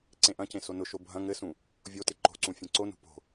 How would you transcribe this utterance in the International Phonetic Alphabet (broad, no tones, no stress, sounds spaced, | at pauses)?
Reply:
ǀ ẽ ʔ ɐ̃ c ẽ s o n ʊ ʃ o bʱ ɐ̃ ŋ ɘ s ũ | vʲ o t ɪ ǃ o̤ ǀ ũ fʲ ẽ ǀ o n ṳ p o̤